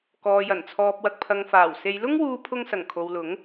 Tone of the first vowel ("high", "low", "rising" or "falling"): low